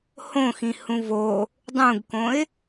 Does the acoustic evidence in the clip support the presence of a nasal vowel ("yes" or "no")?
yes